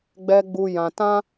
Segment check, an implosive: absent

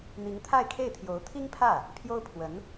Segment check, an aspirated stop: present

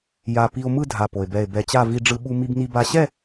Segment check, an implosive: present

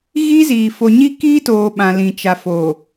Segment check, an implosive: present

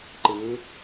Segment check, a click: present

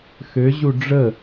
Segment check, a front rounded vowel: present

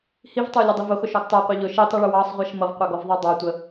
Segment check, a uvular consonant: present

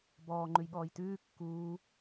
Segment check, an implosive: present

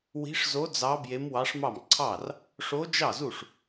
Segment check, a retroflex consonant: present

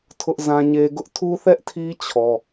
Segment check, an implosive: absent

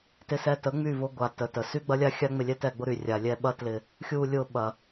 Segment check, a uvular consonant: absent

